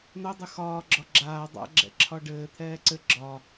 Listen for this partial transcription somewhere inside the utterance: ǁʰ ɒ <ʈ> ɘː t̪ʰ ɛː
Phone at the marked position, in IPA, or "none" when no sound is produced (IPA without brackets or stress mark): ɖ